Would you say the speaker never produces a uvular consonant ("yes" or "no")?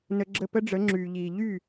yes